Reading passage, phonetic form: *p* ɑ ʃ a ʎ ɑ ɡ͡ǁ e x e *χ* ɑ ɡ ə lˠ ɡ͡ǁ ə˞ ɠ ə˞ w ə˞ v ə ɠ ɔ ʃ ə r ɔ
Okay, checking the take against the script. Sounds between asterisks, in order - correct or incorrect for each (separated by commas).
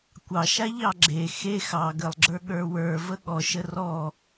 incorrect, incorrect